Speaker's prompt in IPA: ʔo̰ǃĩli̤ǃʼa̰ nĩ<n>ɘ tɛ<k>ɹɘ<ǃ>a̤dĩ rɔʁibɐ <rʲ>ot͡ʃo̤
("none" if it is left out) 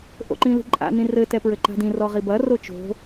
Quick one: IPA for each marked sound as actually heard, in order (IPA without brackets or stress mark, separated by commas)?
r, p, ǃ, r